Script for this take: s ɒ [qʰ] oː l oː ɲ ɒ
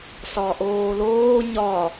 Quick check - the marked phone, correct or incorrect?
incorrect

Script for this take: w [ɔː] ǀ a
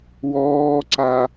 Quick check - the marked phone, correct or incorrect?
correct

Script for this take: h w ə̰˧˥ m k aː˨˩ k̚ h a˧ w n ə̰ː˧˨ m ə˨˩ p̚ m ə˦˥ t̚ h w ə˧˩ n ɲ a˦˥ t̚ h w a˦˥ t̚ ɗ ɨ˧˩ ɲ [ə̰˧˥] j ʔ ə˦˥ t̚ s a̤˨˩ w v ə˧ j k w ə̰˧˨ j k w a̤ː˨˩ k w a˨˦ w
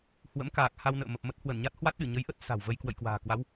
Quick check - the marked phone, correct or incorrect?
incorrect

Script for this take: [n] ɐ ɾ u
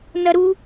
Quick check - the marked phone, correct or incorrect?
correct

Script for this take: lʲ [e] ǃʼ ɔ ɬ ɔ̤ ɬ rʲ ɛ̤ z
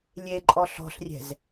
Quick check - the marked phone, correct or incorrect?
correct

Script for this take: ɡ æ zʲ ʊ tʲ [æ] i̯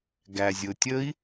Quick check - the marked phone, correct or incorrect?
incorrect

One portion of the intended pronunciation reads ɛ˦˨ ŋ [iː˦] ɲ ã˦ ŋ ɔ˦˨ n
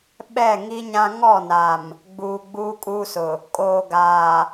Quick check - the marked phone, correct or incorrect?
incorrect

